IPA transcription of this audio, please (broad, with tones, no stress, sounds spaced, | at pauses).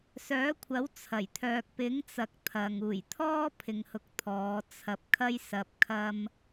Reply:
s œː˨˥ kʷʰ ɐ˨˥ w t͡sʰ ɐ˨˩ j t̪ʰ œː˨ k̚ p ɪ˨˥ ŋ t͡s ɐ˨ k̚ t̪ʰ ɐ˨ ŋ uː˨˩ j t̪ʰ ɔː˥ pʰ ɪ˨ ŋ h ʊ˨˥ k̚ t̪ʰ ɔː˨˧ t͡sʰ ɐ˨˥ p̚ kʰ ɐ˥ j s ɐ˧ p̚ kʰ ɐ˥ m